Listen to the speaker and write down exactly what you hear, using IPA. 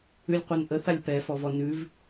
ʉ lʲ qʷ œ n ʔ ə θ a lʲ p ɛ f ɔ v ɔ n ʉ v

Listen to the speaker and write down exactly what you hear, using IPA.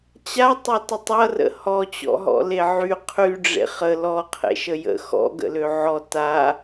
t͡ɕ a tˤ ø t ə tˤ ʌ r ə̰ h ɔ t͡ɕ ɔ̰ ɦ ɔ̰ l e ʕ y qʰ y ɖ͡ʐ ḛ χ ə l ɔ qʰ ḛ ʃ ə j ə̰ x ɔ̰ ɡ ə̰ l ø ʕ ɔ t a

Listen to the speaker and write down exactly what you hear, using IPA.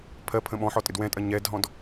pʰ ɜ pʰ ə̃ ɓ ɔ̃ ħ ɔ tʼ ɪ d w ɛ̃ tʼ ɜ ɲ ɛ d ɦ ɔ̃ d

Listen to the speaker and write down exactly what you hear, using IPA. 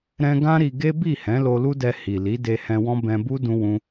ɾ ɛ̃˧ ɡ ã˦ ɾ i˧ ɡ e˦ b i˦˨ h ɛ̃˨˦ l o˧ l u˦ d ɛ˧ h i˨ l i˨˦ d e˧ h ɛ̃˧ w ɔ̃˦ b ɛ̃˧ b u˦ d ũ˦ w ũ˦

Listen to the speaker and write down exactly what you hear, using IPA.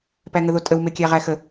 p æ ŋ ə ð o tʼ ə w m e kʲ æ ʁ æ x ə

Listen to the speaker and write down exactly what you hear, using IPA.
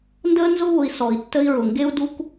n d əː˦ n z ʊ˦ β ʊ˨ i̯ s ɔ˨ i̯ tː ə˦ i̯ ɹ ʊ˨ ŋ ɡ e˦ u̯ d u˦ k

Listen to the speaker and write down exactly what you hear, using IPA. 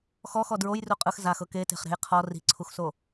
x ɔ x ɔ d ɹ o j r u qʼ ɯ x z a x ɤ k e t e̤ χ ɾ e̤ j qʰ ɔ r i̤ ǀʰ u x s o

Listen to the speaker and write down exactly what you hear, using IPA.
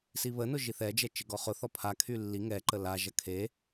s i β ə n ʊ ʒ i θ ɛ d͡ʒ ɛ t͡ʃ ɪ ɡ ɔ χ ʊ θ ɔ pʰ a kʰ y lː i ŋ ɛ ǃ ə l a ʒ ɐ kʰ e

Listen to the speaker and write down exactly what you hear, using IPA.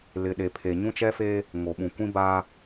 l ɪ˨ ɗ e˨ pʰ e˨ ɲ ũ˦ t͡ʃ ɛ˦ f e˦ | ŋ o˨ ɓ ũ˨ kʷ ĩ˦ b a˦

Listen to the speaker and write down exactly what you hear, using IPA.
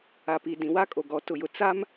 a˨ p i˨ d ĩ˨ w a˦ kʼ o˨ ɡ ɔ˨˦ t ʊ˨ j ʊ˨ t͡s a˦ m

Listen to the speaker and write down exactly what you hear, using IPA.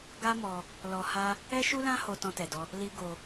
ɡ a˦ m ɔ˧ | l ɔ˧ h a˦ | ɛ˦ ʃ u˦ l ã˦ h o˧ t ɔ̃˧ t ɛ˨ d ɔ˧ | l i˦ ɡ o˧

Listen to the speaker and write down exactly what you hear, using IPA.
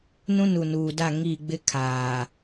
n ũ˦ n u˨ n uː˨ d a˦˨ ŋ i˦˨ ɡ͡b ɪ˦ kʰ aː˨

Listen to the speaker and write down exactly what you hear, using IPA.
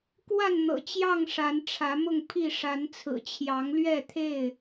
k w a˥˨ n n̪ ɤ̰˨˩ t͡ɕ j ɑ˥˨ ŋ ʂ a˨˦ n ʈ͡ʂʰ ä˨˦ m ʊ˥˨ ŋ pʰ i˥˨ ʂ a˨˦ n t͡sʰ ɹ̩˨˩ t͡ɕʰ j ɑ˨˦ ŋ l ɥ ɛ˥˨ t̪ʰ e˥˨ ɪ̯

